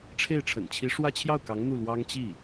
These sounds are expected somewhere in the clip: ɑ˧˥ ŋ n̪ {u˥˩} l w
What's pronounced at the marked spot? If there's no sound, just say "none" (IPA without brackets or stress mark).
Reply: u˥˩